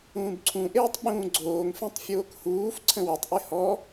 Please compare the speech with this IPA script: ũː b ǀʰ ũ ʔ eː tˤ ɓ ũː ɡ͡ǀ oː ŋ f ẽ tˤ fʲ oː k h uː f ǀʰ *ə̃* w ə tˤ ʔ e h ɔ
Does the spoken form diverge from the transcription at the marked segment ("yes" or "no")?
no